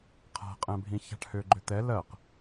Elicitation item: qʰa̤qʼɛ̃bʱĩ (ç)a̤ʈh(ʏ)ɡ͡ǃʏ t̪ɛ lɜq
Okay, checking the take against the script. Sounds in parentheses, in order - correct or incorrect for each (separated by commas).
correct, correct